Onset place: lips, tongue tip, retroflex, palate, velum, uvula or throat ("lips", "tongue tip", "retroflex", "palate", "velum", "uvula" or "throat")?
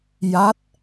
palate